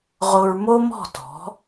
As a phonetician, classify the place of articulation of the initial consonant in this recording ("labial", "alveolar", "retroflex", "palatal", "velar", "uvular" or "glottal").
uvular